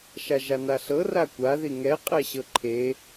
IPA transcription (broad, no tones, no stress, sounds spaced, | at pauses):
ʃ a ʒ a n a ɬ ɤ r a kʷ a ð i ŋ ɛ qʼ ɛ ɕ ɤ ǃʰ e